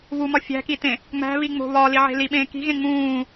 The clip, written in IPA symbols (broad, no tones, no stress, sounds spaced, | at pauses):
β u m ɒ fʲ æ̤ k i t ẽ | ŋ͡m æ̤ β i ŋ͡m o̤ β ɒː l i ʕ e̤ l i ɓ ẽː k i̤ ɣ ẽ ŋ͡m ũː